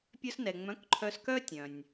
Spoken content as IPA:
pʲœ˧snɛ˩ŋ͡mœ̃˩˥k ǃʰœ˧skœ˥tʲœ̃˩nʲ

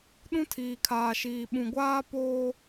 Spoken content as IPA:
ɗũ˦tʰiː˨kʰaː˨ʃiː˨ ɓũ˨ɡʷaː˦ poː˦

